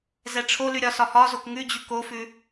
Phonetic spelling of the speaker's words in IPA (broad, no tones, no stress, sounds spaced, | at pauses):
z ɛ ʈ͡ʂʰ o l ʉ ɾʲ ɒ s ɒ h ɒ z o k ŋ ʉ d͡ʑ ʉ k o f ʉ